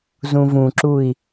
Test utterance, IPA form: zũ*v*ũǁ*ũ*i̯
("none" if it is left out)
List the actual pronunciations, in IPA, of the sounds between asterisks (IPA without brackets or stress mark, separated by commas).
v, u